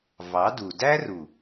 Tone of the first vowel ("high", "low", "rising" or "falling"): rising